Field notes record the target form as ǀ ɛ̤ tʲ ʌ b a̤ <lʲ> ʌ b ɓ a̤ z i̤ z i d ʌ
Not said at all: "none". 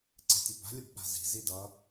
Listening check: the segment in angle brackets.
lʲ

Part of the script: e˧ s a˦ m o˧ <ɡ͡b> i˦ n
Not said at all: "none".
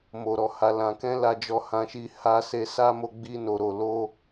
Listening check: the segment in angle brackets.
ɡ͡b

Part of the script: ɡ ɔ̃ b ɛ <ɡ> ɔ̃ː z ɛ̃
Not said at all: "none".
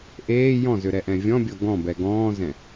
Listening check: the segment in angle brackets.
ɡ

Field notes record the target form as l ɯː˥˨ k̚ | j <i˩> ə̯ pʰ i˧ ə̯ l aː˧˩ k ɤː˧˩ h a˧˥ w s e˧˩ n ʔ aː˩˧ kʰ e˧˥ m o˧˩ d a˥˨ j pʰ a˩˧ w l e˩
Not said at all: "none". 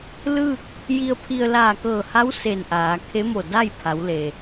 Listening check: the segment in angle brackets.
i˧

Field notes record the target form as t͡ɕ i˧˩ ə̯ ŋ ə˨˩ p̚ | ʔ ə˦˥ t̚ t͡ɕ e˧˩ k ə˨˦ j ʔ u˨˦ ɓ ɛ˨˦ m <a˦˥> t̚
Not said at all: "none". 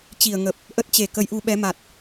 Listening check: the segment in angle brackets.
a˨˩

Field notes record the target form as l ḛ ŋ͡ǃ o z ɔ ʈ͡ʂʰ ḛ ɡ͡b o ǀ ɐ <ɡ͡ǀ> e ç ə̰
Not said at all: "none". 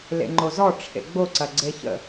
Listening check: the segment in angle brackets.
ɡ͡ǀ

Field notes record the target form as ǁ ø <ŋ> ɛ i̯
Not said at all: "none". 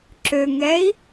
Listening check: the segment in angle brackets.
ŋ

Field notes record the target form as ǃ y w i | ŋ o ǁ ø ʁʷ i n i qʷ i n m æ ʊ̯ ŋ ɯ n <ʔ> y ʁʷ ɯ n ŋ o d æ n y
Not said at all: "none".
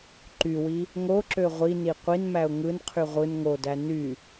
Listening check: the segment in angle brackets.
qʰ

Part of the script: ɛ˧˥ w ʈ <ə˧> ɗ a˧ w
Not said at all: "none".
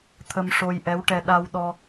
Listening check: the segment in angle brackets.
ɛ˧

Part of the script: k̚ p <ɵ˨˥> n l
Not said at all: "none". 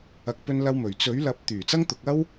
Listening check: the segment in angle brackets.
ɵ˧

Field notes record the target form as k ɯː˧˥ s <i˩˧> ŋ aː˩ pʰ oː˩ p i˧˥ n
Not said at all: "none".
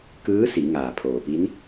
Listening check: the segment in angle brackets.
i˩˧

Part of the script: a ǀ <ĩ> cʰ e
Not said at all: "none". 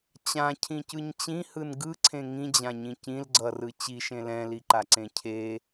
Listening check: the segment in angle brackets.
ẽ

